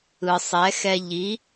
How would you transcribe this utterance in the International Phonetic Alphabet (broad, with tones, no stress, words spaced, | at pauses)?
ɯ˩sˤɛ˩˥xɛ˧ ʎi˩˥